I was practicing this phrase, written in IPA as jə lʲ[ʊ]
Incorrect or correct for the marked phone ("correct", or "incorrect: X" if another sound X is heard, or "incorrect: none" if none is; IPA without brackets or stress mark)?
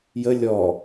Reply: incorrect: ɔ